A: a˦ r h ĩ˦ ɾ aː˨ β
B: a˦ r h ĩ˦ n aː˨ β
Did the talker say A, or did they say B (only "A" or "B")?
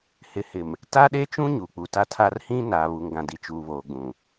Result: B